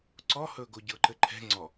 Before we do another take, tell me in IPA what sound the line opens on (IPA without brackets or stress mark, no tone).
ǀ